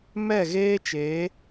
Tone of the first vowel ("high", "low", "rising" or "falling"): falling